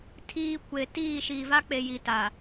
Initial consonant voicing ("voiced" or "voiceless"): voiceless